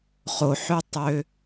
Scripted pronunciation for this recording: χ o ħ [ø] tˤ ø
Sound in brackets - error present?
no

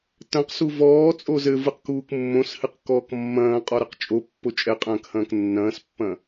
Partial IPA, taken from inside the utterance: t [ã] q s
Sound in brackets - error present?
yes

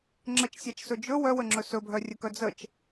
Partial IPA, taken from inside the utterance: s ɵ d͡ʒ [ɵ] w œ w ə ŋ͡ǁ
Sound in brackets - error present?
no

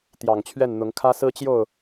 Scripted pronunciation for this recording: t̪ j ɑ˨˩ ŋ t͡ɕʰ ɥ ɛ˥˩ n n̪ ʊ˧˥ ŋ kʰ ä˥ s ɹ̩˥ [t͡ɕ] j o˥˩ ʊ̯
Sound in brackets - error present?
no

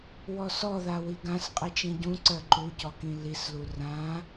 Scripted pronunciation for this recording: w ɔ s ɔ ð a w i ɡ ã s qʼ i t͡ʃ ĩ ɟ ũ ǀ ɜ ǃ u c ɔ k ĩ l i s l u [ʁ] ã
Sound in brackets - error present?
yes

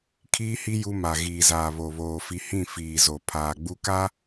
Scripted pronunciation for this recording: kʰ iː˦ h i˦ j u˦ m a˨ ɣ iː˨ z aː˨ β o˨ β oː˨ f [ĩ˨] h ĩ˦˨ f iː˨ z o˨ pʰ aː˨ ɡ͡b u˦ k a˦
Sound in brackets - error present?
yes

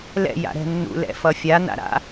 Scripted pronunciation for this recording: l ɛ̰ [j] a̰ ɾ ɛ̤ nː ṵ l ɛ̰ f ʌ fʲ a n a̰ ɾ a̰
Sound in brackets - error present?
no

